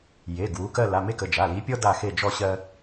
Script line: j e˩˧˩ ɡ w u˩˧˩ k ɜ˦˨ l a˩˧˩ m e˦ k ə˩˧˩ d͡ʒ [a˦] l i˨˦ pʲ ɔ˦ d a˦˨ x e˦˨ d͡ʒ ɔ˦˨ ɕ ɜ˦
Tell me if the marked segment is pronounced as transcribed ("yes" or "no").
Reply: no